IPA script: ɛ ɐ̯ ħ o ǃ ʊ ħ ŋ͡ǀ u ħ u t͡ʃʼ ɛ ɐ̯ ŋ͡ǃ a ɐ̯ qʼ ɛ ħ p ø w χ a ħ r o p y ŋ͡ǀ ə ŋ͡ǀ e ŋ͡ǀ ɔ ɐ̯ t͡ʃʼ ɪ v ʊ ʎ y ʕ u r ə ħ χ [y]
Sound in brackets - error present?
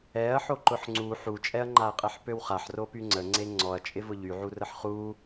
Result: yes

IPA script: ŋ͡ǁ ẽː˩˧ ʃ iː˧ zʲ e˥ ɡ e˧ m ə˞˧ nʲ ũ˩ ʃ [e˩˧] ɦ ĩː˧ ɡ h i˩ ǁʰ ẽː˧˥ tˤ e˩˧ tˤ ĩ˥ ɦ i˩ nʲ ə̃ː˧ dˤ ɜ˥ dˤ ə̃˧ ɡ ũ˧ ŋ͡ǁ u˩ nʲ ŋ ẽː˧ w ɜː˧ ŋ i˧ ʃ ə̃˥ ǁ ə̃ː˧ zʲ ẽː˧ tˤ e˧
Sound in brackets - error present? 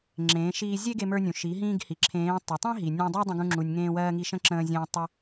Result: yes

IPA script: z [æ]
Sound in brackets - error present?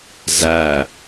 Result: no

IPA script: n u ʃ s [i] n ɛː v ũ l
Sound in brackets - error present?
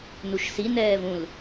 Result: no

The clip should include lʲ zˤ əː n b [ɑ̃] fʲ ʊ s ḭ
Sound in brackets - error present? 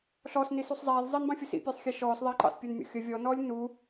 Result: no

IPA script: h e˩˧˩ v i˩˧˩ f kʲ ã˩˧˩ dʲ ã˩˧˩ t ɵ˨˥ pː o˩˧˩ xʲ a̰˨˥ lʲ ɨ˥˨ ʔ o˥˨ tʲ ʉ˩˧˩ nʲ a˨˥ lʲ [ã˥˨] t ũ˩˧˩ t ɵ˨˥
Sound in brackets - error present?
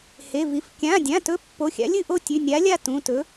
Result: yes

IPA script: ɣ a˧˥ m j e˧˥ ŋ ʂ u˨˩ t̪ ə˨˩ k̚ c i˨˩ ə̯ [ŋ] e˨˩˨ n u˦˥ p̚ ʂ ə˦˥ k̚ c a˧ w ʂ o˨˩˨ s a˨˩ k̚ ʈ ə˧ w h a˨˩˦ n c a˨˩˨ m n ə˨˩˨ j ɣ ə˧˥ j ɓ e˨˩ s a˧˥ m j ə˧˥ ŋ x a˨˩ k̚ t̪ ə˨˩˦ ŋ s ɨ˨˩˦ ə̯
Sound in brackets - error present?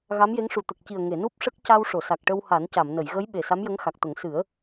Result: no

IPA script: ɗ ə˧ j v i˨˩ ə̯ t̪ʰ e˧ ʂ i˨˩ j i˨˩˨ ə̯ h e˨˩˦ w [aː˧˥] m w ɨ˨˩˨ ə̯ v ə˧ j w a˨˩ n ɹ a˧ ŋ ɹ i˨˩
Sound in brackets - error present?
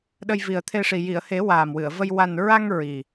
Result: yes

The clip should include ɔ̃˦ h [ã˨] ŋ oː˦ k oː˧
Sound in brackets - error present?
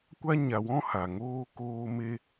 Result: yes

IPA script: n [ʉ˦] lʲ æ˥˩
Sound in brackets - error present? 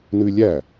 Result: no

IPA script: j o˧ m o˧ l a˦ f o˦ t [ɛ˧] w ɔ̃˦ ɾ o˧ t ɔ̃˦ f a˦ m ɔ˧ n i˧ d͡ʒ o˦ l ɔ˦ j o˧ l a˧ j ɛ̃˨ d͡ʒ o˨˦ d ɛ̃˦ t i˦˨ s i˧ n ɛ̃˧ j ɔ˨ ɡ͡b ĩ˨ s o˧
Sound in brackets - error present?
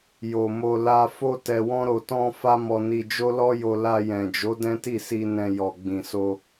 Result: no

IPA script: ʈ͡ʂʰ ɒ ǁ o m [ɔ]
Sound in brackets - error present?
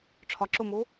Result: yes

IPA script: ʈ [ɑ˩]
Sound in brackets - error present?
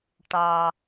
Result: no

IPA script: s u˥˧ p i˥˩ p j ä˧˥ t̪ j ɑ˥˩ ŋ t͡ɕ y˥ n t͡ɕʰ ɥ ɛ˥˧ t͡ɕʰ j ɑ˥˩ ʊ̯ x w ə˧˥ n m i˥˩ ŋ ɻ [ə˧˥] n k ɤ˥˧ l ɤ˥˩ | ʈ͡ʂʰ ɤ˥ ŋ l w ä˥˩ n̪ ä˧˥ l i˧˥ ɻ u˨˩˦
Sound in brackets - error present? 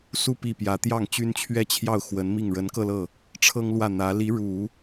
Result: no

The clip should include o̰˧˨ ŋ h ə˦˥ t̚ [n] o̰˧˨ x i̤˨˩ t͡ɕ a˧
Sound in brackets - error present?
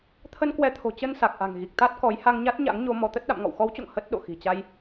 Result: yes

